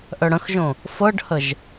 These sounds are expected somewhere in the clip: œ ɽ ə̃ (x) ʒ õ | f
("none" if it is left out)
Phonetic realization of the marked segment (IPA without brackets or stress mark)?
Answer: x